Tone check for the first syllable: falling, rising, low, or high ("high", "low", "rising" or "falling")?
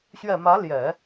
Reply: low